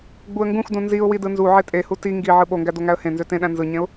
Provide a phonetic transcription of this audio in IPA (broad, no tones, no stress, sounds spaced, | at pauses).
ɡ͡b u ə̯ ŋ ɡ ũ x d ũ n z i ʊ̯ w i d ɯ n z u ʕ e tʼ e h u t i ŋ ɡ i ʕ ɯ ɓ o ŋ ɡ æ d o ŋ æ ə̯ h ẽ n z ø t ẽ ɗ æ̃ n z ɯ ɲ ẽ ʊ̯